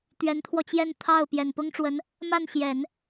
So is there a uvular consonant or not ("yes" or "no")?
no